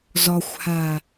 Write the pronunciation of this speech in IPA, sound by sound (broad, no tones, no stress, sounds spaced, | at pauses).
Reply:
z ɔ xʷ h a